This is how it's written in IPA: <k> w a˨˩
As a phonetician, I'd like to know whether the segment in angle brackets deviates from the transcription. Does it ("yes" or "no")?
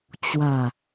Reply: yes